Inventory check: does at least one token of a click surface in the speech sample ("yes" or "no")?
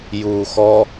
no